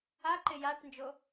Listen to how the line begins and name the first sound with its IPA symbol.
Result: a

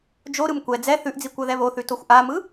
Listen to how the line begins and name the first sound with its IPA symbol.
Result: d͡ʒ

